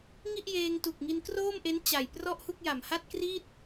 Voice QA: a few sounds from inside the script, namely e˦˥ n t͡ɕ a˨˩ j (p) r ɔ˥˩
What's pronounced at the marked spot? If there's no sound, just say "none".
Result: p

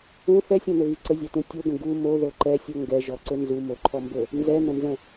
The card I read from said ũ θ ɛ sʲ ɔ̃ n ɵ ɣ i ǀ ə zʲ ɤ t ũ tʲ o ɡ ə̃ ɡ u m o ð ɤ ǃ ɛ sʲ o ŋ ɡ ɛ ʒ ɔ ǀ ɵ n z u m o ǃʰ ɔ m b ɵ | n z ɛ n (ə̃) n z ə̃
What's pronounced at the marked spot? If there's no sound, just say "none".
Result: ə̃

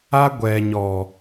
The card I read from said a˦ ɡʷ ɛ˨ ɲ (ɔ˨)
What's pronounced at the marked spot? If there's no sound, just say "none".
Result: ɔ˨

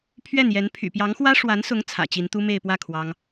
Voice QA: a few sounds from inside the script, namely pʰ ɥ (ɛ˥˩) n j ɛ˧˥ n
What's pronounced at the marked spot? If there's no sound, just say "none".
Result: ɛ˥˩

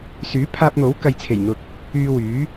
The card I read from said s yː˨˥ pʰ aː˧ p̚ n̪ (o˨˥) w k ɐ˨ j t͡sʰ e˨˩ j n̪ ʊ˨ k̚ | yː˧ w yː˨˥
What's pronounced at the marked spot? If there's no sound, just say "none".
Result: o˨˥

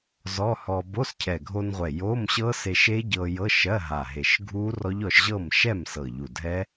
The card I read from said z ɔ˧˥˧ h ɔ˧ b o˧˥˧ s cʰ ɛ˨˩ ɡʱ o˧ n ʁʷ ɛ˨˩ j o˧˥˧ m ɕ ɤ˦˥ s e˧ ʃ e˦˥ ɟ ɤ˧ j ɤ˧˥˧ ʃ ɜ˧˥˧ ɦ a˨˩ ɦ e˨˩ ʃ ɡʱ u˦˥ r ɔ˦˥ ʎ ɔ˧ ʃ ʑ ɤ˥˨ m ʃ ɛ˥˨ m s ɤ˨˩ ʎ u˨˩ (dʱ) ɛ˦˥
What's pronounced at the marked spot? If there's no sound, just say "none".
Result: dʱ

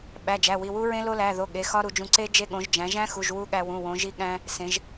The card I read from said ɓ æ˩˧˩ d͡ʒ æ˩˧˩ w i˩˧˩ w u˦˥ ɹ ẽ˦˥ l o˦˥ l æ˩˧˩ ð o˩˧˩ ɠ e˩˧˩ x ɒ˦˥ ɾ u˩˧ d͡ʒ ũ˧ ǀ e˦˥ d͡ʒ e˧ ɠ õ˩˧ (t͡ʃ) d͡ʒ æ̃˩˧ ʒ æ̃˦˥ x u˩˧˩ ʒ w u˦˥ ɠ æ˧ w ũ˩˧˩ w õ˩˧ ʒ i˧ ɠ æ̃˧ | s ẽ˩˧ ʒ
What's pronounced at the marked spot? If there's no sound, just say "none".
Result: ʒ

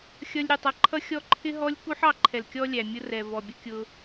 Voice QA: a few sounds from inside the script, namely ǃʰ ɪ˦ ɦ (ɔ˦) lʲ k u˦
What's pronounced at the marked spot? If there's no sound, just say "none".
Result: ɔ˦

